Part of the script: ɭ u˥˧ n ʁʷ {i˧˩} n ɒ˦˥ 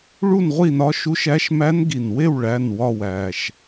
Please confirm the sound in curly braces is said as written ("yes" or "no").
no